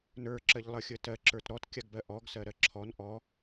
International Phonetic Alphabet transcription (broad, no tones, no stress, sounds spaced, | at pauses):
n ə˞ ǁ ɜ ʎ lˠ ə xʲ ə t ɜ ǁ ə˞ t ɾ ɔ t kʲ a ɡ b ɜ ʔ ɔ ɡ s ɜ ɾ ɜ ǁʰ ɔ n ʔ ɔ